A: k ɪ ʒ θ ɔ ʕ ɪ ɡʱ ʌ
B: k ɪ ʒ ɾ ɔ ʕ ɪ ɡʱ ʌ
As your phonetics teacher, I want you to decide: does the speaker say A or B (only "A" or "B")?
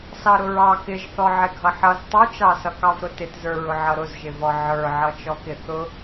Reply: A